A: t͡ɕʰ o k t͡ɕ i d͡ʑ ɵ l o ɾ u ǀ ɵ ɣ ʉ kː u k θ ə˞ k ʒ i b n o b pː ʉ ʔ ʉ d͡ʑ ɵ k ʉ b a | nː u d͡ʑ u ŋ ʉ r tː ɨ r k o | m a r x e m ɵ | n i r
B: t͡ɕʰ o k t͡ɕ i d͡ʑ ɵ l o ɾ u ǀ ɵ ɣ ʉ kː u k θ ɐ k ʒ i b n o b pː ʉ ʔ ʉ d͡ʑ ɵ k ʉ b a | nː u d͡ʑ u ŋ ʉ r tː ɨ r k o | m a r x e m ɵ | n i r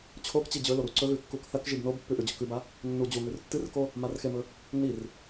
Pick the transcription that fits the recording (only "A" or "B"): B